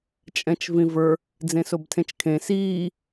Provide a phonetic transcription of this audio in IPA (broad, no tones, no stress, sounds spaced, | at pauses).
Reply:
t͡ʃʼ ɛ̃ t͡ʃ v ĩ v ə˞ | d͡z ẽ s o b tʰ ẽ t͡ʃ kʰ ẽ s iː